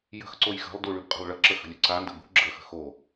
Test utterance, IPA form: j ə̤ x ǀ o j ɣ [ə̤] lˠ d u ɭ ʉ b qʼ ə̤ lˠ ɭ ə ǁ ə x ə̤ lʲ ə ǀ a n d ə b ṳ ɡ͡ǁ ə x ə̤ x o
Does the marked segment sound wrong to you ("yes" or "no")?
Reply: no